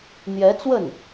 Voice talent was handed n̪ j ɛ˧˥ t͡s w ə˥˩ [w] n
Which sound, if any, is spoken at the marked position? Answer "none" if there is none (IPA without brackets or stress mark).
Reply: none